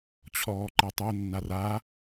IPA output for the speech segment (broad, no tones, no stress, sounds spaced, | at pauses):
t͡ɕʰ ɔː ǃ ɛ tˤ o nː a r a